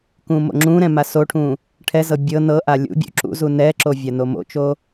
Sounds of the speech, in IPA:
kũmo̰ŋ͡ǁũɾɛ̃ masoʈʰũ | ʈʰɛzɤ bʲɤ nɤʔa lʲṵbʲṵ ǁṵzu nɛǁo vʲanomo̰t͡ʃo

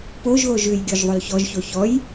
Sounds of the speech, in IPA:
poʒɣoʒ ʉjɡʲoʒ ðˤolçɔʒço çɔj

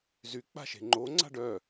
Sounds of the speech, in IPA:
zyk͡pa̤ʃe̤ ŋ͡ǃoŋ͡ǀa̤ɖ œ

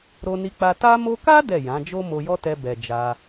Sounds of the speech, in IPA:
ɾo˧ni˧k͡pa˧ ta˧mo˧ka˦ dɛ˦˨jã˨˦ d͡ʒo˦mo˧jɔ˦tɛ˧ bɛ˨ d͡ʒa˧

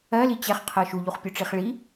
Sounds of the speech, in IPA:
ɜli t͡ɕɛχqʰɤ ʃuʎuχpʲuʈ͡ʂiχ ɭi

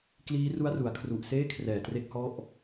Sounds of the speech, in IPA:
kliː˦˥ru˦˥a̯ru˩˦a̯ kʰru˨˩ʔseː˥˩ kʰrɛː˨˩tre˦˥k̚ hɔ˦˥ʔ

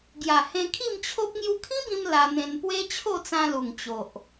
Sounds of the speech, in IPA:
ɡja˨˩hẽ˧kʰi˥˧mt͡ɕʰo˦p̚ ŋju˧kʰĩ˦bĩ˧m la˧n̪ẽ˧n pwe˦t͡ɕʰo˥˧t͡sã˧lu˨˩ŋ t͡ɕo˨ʔ

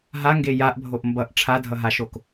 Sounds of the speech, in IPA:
ɦaŋɡe jaʔbʱoʔ mbʌʔ ʈ͡ʂʰadʱʌɦaʃok

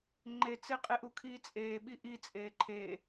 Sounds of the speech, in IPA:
ŋ͡ǃet͡se qʼeʔukʰiːt͡sʼeː ɓiʔi t͡sʼeːǃʰe

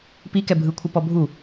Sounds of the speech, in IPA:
pikɛ bʱɯkʷʰɤpɔ bʱu

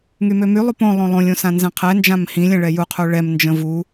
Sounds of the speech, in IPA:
ŋymømy lˠupõ lˠõlˠõlʲ õsãnzɛ̃qʰɛ nd͡ʒãmhĩlʲ ɛ̃ɭɛju qʰuɭɛm nd͡ʒə̃vu

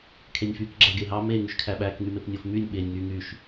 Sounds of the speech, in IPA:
kʰenʲfyk ɡ͡ǁæɡeɦɑ me ŋyʃkʰæɓæk ŋymepnʲof mynʲ ɓenʲ ŋy ŋyʃ

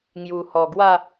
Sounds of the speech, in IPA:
ŋju˨˩hɔ˨˩ ɡwa˥˧

